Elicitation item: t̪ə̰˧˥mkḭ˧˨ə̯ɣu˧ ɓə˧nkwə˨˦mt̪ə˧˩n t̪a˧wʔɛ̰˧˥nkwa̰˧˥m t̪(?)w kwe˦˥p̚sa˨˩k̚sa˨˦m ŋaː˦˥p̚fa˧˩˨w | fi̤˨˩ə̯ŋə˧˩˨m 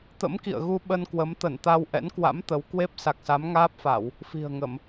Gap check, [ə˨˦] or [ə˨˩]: ə˨˦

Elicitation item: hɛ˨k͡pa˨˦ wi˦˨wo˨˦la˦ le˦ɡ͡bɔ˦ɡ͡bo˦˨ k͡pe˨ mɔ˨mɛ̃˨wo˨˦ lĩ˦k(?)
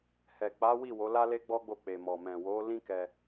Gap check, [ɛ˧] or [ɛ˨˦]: ɛ˧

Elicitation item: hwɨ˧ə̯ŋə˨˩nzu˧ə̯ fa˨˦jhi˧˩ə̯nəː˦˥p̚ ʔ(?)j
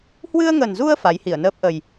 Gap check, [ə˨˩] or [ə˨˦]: ə˨˩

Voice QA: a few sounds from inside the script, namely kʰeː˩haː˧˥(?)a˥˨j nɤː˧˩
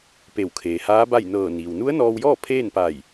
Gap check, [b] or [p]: b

